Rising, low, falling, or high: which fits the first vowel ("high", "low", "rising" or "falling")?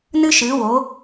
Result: high